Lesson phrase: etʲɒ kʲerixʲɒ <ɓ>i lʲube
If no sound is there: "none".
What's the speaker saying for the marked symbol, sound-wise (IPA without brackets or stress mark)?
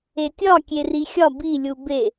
b